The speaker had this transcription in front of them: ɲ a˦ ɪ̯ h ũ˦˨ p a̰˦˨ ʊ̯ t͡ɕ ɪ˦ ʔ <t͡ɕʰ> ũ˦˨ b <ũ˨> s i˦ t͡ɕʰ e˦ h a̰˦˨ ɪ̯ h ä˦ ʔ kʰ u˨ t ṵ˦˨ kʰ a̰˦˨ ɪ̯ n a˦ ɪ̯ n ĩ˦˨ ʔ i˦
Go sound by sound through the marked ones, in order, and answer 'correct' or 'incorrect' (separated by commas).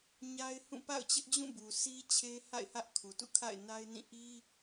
incorrect, incorrect